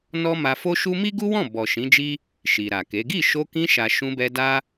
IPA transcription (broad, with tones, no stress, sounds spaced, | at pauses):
n ɔ˦ m a˧ f o˦ ʃ u˦ m i˦ ɡ u˦ w ɔ̃˦˨ b ɔ˨ ʃ ĩ˨˦ d͡ʒ i˦ | ʃ i˨ ɾ a˨ k e˨˦ ɡ i˦˨ ʃ o˧ k ĩ˧ ʃ a˨ ʃ ũ˧ b ɛ˧ d a˦